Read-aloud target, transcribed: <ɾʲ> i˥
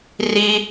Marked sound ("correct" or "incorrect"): incorrect